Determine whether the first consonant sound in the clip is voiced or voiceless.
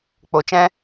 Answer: voiceless